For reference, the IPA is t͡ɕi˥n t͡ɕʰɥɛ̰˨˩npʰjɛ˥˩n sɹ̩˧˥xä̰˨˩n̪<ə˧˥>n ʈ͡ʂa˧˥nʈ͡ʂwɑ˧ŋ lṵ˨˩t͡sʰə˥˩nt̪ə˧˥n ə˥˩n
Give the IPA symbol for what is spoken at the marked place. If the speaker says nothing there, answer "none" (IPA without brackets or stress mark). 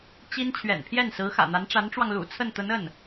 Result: a˧˥